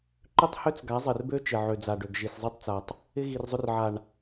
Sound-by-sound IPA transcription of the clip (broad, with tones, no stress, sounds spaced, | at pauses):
ǃ ʏ˦ tˤ h ø˦ t͡s ɡ a˨˦ zˤ ɪ˨ r b ø˦ t͡ʃ ɪ˨ ʕ ø˨ d͡z a˨ ɖ ø˨ ɡ ʒ i˨ s zˤ i˦ tˤ t͡s a˨ tˤ | ɪ˦ ɣ i˨ r zˤ ʏ˦ r ʕ a˨ ɳ